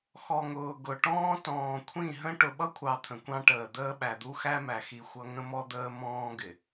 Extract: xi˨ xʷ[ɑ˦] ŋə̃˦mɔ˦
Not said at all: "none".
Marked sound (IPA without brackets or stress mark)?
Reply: ʌ˦